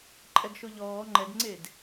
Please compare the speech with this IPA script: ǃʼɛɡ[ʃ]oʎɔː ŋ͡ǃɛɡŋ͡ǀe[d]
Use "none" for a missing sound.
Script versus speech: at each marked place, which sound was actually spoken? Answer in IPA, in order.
ʃ, d

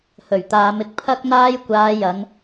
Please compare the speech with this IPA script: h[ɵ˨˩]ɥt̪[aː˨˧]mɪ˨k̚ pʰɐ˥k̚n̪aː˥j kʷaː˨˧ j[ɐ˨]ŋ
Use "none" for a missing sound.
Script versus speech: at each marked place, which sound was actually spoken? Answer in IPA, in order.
ɵ˨˩, aː˨˧, ɐ˨˧

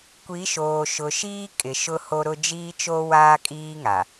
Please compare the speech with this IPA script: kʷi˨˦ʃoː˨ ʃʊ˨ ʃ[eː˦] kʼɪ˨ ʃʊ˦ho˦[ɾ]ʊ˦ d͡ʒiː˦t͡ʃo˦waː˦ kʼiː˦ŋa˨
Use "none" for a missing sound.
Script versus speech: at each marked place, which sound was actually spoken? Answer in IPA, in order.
iː˦, ɾ

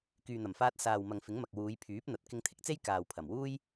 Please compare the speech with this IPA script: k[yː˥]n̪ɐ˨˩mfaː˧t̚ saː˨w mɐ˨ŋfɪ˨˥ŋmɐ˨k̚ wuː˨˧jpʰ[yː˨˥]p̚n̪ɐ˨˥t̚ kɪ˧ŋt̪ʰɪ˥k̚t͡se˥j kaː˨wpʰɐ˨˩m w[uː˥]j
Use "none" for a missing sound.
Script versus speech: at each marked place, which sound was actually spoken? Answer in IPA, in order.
yː˨, yː˨˥, uː˥

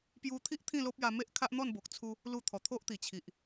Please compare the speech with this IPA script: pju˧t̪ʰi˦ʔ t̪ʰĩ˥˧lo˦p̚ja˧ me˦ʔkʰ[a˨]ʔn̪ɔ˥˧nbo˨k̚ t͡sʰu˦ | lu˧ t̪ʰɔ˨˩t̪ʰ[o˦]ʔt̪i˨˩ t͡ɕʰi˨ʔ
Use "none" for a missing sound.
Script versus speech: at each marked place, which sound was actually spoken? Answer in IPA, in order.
a˦, o˦

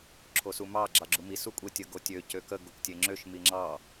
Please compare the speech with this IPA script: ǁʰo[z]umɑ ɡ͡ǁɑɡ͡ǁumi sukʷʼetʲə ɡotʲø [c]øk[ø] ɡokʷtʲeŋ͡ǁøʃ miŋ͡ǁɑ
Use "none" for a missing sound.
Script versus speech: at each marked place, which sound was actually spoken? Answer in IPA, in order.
s, c, ə

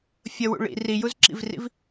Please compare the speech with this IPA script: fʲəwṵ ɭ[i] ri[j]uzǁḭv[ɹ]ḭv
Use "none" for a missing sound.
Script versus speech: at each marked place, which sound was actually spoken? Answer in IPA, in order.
ḭ, j, r

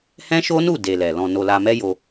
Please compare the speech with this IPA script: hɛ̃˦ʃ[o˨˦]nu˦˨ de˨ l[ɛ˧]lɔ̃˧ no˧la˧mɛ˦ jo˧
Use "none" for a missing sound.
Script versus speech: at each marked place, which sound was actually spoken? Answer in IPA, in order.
o˦, ɛ˨

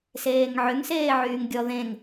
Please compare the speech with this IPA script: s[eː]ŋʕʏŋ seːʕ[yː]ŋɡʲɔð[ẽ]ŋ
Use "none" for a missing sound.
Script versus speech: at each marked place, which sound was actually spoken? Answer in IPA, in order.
eː, yː, ẽ

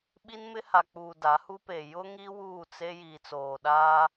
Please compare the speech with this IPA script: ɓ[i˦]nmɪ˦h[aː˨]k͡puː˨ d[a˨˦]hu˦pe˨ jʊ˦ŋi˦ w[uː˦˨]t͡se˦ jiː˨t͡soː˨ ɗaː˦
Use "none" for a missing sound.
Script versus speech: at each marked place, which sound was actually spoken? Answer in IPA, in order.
i˦, a˨, a˨˦, uː˦˨

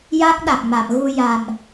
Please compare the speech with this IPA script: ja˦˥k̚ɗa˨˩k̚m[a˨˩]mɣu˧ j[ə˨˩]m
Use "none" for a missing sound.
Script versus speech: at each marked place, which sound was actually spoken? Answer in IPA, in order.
a˨˩˨, a˨˩

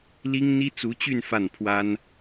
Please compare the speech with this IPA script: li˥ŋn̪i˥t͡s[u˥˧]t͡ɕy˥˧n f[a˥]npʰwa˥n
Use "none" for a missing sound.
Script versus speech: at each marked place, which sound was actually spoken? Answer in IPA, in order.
u˧˥, a˥˩

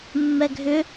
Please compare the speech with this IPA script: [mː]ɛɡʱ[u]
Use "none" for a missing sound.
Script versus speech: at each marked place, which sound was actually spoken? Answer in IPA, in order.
mː, ʏ

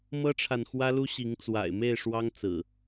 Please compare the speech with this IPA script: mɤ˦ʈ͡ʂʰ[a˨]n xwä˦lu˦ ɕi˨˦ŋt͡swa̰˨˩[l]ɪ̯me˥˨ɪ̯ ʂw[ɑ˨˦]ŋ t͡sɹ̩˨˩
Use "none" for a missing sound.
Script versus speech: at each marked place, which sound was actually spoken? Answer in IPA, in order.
a˨, none, ɑ˦

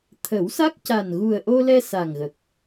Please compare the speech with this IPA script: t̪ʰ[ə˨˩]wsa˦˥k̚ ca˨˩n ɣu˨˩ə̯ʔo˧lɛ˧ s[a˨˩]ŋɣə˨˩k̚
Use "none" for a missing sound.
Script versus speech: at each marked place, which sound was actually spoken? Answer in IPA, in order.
ə˨˩˦, a˨˩

